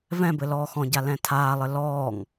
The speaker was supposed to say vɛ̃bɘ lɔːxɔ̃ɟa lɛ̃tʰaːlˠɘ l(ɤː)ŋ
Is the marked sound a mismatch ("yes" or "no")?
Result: yes